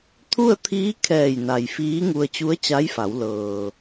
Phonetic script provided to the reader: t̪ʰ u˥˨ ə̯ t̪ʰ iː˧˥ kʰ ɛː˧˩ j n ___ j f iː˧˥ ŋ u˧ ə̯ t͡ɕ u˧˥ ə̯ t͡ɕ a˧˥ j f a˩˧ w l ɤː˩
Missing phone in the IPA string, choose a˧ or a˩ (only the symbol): a˩